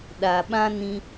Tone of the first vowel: low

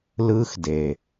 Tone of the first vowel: high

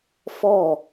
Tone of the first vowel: falling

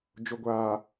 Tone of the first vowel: low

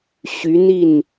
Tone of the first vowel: rising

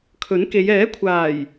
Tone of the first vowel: rising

